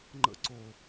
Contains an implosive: no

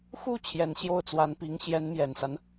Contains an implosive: no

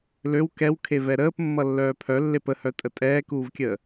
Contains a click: no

